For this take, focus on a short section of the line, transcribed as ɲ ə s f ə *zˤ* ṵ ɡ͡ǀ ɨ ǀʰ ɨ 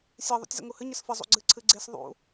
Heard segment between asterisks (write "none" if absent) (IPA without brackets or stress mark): zˤ